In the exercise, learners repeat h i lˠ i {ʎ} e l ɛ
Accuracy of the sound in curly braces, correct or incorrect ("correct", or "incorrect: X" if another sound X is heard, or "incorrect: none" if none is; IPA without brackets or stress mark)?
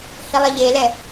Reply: correct